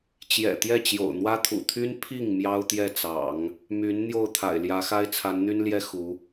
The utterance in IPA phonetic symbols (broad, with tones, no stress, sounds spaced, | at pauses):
t͡ɕ j ɛ̰˨˩ t̪ j ɛ˥˩ t͡ɕ j o̰˨˩ ʊ̯ n̪ w ä˥ t̪ʰ ṵ˨˩ t̪ʰ y˥ n pʰ i˥˩ ŋ m j ɑ˥ ʊ̯ t̪ j ɛ˥˩ t͡s ɑ̰˨˩˦ ŋ | m y˧˥ n n̪ j o˥˩ ʊ̯ t̪ʰ a̰˨˩ ɪ̯ l j ä˧˥ x a˥ ɪ̯ t͡sʰ a˧˥ n n̪ y˥ n l j ɛ˥ x u˧˥